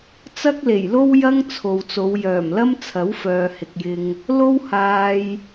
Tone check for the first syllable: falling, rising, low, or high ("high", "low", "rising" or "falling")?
high